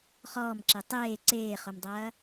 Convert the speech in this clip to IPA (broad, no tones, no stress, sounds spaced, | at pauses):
χ ɔː m ǁ e tˤ eː ǀ eː χ o m dˤ ɐː